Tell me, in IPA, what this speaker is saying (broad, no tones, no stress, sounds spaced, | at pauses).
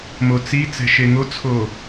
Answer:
m o t͡s i t͡s ɛ̤ ʃ e ŋ o t͡sʰ o